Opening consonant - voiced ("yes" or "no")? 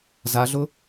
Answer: yes